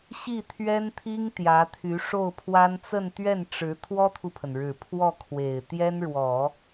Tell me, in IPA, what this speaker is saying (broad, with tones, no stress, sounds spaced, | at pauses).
ɕ i˥˩ t̪ʰ ɥ ɛ˥ n t̪ʰ i˥ ŋ t̪ j ä˧˥ t̪ʰ y˧˥ ʂ o˥˩ ʊ̯ pʰ w a˥ n t͡s ə˥˧ n t̪ ɥ ɛ˥˩ n ʈ͡ʂ ɻ̩˧˥ t̪ʰ w ɔ˥ t̪ʰ u˨ pʰ ə˩ n ɻ ɻ̩˨˩ pʰ w ɔ˥˩ kʰ w e˨˩ ɪ̯ t̪ j ɛ˥ n ɻ w ɔ˨˩˦